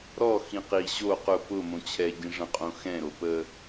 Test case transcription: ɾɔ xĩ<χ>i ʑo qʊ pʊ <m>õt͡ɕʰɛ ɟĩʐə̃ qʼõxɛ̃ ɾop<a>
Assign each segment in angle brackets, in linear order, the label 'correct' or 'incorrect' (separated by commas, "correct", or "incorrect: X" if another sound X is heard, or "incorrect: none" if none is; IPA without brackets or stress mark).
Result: incorrect: q, correct, incorrect: ə